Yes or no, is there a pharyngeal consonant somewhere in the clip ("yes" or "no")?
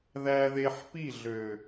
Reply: yes